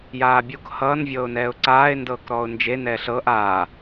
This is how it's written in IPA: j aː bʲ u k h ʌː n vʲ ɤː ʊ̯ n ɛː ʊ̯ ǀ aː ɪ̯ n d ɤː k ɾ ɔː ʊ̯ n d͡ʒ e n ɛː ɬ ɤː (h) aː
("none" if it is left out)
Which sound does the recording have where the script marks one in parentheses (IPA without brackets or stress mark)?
ʔ